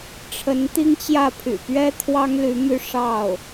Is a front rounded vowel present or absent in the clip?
present